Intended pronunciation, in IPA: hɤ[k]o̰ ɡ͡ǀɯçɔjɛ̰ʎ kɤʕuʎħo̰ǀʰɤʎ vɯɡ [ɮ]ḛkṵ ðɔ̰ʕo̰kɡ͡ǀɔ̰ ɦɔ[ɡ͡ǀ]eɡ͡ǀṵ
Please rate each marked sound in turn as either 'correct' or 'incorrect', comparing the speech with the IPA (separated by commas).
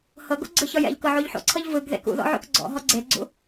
incorrect, incorrect, correct